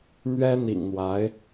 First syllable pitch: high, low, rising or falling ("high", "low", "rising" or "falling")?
high